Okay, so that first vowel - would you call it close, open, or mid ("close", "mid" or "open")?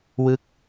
close